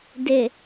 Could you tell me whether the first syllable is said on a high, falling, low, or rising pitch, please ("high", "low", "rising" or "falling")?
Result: low